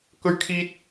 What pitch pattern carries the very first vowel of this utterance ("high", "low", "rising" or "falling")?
high